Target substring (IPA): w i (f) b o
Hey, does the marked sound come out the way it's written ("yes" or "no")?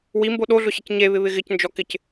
no